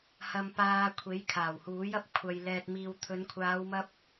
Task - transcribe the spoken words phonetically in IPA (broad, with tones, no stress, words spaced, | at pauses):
hɐ˧mpaː˧kʷʰe˨˥j kʰaː˨˩whuː˨˥jɐ˧p̚ kʷʰɐ˨j lɛː˨t̚miː˨wt̪ʰɵ˨˧n kʷʰaː˨˧wmɐ˧p̚